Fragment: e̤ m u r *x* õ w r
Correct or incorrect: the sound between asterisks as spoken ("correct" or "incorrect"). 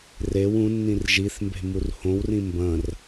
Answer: incorrect